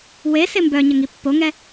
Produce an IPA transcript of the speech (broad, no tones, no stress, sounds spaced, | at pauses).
w e s e m b œ ɲ ə ŋ i pː o ŋ ɛ